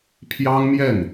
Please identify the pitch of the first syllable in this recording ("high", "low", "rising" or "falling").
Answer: high